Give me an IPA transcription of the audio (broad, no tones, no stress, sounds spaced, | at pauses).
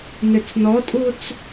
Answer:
n ɪ t͡s n ɔ tʼ u t͡s